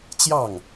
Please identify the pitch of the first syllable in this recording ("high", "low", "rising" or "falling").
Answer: falling